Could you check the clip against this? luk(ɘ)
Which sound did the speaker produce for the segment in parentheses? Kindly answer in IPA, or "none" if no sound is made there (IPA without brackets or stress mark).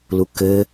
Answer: ɘ